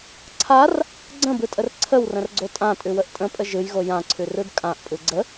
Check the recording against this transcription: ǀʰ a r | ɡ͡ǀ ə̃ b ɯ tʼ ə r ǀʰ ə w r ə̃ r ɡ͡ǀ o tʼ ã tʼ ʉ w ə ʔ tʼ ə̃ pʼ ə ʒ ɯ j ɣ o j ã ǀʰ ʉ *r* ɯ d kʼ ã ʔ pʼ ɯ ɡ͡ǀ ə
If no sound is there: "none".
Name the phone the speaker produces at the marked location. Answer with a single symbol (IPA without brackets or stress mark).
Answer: r